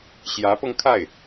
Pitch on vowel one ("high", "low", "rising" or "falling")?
rising